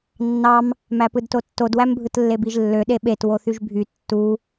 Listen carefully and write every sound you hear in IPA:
nː ɑ m | m æ p ɯ d t o tː o d w æ m bʱ ɯ t lː e b i ʒ lː ø ɗ e ɓ e t w o θ y ʒ bʱ y tː u

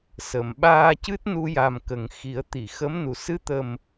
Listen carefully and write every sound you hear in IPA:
s ə˨˩˨ m ɓ aː˧ c ɨ˦˥ t̚ n u˧ j a˨˩ m k ə˨˩ ŋ x i˨˩˦ ə̯ t̪ i˨˩˨ x ə˧˥ m n u˨˩ s ɨ˧˥ t̪ ə˨˩ m

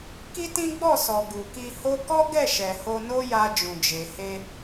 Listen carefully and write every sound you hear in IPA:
k i˦ t ĩ˦ ɡ͡b ɔ˦˨ s ɔ˨ ɡ u˨ k i˧ h o˦ k ɔ˦ ɡ ɛ˦˨ ʃ ɛ˨ h o˧ n o˦ j a˧ d͡ʒ ũ˨ d͡ʒ e˨ h e˧

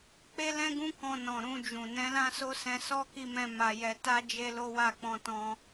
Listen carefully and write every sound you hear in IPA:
k͡p e˦ l ɛ̃˦ ɡ ũ˦ k ɔ̃˧ n ɔ̃˨ ɾ ũ˧ d͡ʒ ũ˨ n ɛ̃˨˦ l ã˦ s o˦ s ɛ̃˧ s ɔ˦ k i˦ m ɛ̃˦ m a˧ j ɛ˧ t a˦ d͡ʒ e˦ l o˦ w a˦˨ k͡p ɔ̃˧ t ɔ̃˧

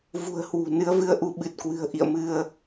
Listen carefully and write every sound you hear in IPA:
v ṳ˨˩ ə̯ h w ṳ˨˩ n ɨ˨˦ ə̯ v ɨ˧ ə̯ ʔ u˨˦ ɓ ɨ˨˩ t̚ k w ɨ̤˨˩ ə̯ ʔ ḭ˧˨ ə̯ m ɨ˧ ə̯

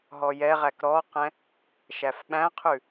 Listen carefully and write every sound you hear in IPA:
ɦ ɔ j ɛ ʁ æ k ɾ ɔ q ɛ̃ | ʃ æ f ɓ æ̃ qʰ ʉ

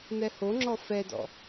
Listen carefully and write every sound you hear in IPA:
n̪ ɛ h o ŋ͡ǁ ɔ f ɛ d ɔ̰

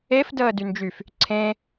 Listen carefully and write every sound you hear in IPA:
e f d əː d y n d͡ʒ y f | ǀʰ ẽ

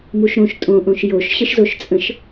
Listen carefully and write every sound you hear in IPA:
m u ʃ ɾ õ ʃ tʼ õ ʔ õ ʃ j o ʃ ɕ ə ʃ z o ʃ t͡sʼ ə̃ ʃ

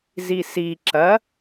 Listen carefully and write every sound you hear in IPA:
z i s i ǁ ɐ

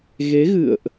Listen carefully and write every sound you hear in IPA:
ɣ e˨˦ ɣ ɨ̰˧˨ ə̯ ʔ

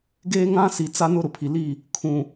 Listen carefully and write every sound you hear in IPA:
ɡ e˦ ŋ ã˦ s i˨ t͡s a˦ n ʊ˦ ɾ ʊ˨ pʰ i˨ l i˦˨ | kʰ ũ˨

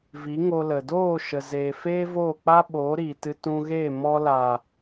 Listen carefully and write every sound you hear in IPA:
v i˨˦ ŋ o˧ l ə˨ d oː˦˨ ʃ ə˨ z eː˨ f eː˦ v oː˦˨ k͡p a˦ ɓ oː˨˦ ɾ iː˨ t ɨ˧ t ũ˧ ɣ e˦˨ m ɔ˧ l a˨

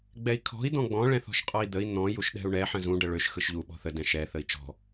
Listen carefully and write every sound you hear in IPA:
ɡ͡b ɛ i̯ kʰ ɔ̤ i̯ d̪ ɔ̃ ɡ͡b ɔ̃ ɭ ɛ̃ θ ɔ̤ ʃ qʼ ɔ i̯ d̪ ə i̯ n̪ ɔ̃ j u ʃ ɗ ɛ̤ u̯ ɳ ɛ ħ ə̃ z ũ ɖ ə ɭ ø ʃ x ɯ ʃ ʎ u ɓ ɔ̤ θ ə d ɛ̃ ʃ ɛ θ ə i̯ t͡ʃ ɔ̤

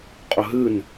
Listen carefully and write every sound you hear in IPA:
qʼ ɵ ɦ ɨ n

